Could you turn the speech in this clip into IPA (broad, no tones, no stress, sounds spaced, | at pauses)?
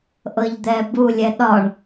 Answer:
ʔ ɤ ʎ d̪ ɛ b u lʲ ɛ ɗ ɒ ɳ